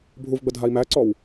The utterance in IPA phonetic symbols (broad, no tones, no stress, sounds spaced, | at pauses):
bʱ u v ɡ͡b ə dʱ a i̯ m æ ǀ ɔ w